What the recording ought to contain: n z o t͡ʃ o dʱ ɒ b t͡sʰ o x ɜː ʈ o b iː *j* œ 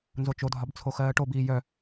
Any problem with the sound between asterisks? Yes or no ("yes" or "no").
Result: no